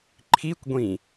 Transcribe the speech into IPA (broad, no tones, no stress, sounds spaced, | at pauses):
ǃʰ i kʷ ɡʷ ĩ